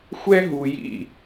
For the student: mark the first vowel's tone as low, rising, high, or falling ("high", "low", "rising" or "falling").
high